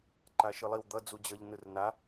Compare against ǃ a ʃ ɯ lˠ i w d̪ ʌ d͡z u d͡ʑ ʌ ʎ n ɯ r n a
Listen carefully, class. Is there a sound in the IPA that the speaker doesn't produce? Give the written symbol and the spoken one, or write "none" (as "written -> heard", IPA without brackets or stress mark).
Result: none